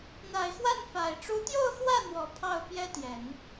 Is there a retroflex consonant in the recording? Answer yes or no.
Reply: yes